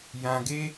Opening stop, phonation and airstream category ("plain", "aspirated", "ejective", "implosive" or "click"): plain